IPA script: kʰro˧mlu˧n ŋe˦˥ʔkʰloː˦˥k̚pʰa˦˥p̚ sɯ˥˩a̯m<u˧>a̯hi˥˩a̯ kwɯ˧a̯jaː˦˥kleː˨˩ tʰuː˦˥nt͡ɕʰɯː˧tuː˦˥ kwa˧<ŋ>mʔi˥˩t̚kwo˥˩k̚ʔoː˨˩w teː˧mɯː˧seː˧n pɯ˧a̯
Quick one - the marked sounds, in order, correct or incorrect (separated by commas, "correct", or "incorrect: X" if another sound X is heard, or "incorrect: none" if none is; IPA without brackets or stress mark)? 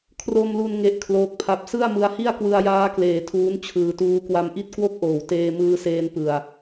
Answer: incorrect: ɯ˧, incorrect: none